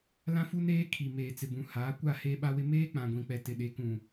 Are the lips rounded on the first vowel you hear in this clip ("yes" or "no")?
no